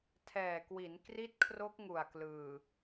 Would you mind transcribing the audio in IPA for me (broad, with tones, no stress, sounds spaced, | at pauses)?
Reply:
tʰ ɛː˨˩ k w i˩˦ n k r i˦˥ t̚ kʰ r o˦˥ k̚ ŋ u˨˩ a̯ k l ɯː˨˩